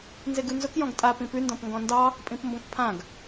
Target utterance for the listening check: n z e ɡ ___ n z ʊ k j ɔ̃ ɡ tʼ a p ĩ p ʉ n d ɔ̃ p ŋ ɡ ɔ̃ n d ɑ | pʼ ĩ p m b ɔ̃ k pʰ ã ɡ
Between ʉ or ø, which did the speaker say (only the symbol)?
ʉ